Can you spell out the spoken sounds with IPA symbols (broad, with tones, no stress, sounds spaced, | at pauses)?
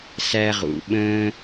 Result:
s æ˦ ʁ ṵ˩ ɓ ə̃ː˥